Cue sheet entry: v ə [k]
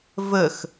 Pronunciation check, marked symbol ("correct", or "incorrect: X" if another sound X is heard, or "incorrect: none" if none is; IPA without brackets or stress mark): incorrect: x